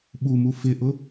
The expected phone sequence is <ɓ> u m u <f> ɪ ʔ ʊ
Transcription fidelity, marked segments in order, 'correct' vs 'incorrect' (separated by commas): correct, correct